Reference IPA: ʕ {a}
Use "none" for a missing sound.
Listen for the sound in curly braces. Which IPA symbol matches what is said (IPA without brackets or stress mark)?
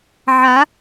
a